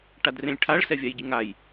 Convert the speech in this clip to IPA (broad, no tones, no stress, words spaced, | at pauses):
ʈadrẽlʲʈʰaɭ sɛvʲajɟɨŋaj